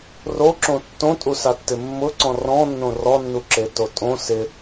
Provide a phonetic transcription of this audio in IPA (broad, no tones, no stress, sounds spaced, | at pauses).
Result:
r o ǁ õ tː õ tʼ u s a tː ɪ mː ʊ ǀ ɔ̃ r ɔ̃ nː õ r ɔ nː u ǁ e t o tʼ õ s ɪ